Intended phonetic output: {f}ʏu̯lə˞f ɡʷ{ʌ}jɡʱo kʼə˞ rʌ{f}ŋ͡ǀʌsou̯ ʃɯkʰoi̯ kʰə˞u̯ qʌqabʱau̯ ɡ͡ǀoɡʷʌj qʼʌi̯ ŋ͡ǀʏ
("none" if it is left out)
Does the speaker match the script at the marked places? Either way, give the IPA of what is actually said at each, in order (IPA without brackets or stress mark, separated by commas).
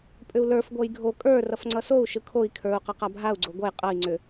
pʼ, ʌ, f